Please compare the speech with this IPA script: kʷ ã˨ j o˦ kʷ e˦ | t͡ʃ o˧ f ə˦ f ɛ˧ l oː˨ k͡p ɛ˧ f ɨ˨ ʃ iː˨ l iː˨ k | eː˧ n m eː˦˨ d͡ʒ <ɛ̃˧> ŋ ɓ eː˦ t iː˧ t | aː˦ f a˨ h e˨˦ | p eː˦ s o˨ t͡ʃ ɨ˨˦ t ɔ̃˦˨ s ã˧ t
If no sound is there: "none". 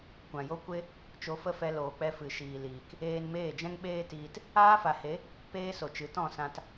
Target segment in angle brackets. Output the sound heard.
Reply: ɛ̃˦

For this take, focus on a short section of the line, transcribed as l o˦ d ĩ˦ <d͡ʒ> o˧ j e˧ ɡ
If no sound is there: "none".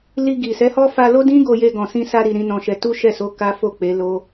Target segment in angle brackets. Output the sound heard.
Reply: ɡ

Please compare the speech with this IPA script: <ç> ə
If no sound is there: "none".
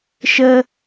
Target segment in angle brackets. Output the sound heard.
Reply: ʃ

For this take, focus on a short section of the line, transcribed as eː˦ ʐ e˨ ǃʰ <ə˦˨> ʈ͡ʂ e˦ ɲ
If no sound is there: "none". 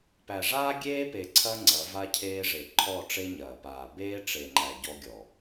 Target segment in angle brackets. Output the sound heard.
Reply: ɔ˦˨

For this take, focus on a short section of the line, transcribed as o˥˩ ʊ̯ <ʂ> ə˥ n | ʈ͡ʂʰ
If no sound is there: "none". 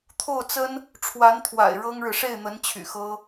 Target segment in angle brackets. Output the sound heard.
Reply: t͡s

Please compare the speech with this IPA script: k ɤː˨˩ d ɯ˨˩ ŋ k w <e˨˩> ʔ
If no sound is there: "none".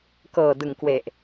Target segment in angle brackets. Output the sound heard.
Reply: e˨˩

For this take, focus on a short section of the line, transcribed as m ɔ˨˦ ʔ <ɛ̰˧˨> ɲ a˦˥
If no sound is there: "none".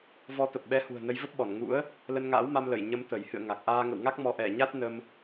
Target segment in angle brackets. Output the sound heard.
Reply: ɛ˧˩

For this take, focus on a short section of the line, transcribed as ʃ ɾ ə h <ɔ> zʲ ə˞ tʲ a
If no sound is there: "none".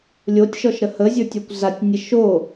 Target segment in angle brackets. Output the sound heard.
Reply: ə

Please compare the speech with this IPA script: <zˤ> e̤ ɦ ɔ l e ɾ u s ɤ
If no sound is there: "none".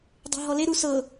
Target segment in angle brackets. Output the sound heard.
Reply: dˤ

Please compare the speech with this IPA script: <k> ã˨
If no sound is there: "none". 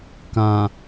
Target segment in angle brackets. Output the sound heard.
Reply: k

